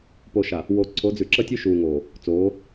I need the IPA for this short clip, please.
po˨ʃa˨ | wo˨ ǀʰo˨˦d͡zʉ˨ǁə˦tʲʉ˦ ʃuː˨ ŋoː˨ | t͡soː˨˦

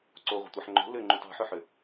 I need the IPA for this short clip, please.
ǀoʁʷə̤tʷɑħ ŋ͡ǃo̤ lʏŋ͡ǃut ɑ̤ħʏħʏ

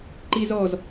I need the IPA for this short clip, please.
ǃizɔz

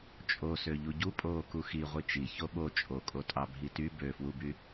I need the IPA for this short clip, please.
t͡ʃʼosø ʎuɟu pʼoːkuxi ʁʷit͡ʃi çoɓo t͡ʃʼokʼotʼɑ bʱity bøfwuby

